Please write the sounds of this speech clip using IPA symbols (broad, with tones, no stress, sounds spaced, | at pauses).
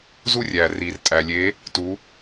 z u˦ rʲ æː˩ r iː˩ r tʼ æ˩ lʲ e˩˧ | t u˩˧